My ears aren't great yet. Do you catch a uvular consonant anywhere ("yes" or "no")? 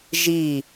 no